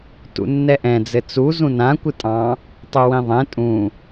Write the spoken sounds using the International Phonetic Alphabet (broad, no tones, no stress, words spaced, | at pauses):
tṵnːɛʔɛ̃ d͡zɘt͡su zũnã kʷɨtʼɑ̃ | tˤuwĩðˤɛ̃ tʼũ